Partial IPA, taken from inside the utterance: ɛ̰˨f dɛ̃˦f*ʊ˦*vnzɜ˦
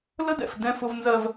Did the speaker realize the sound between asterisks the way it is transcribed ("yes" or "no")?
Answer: yes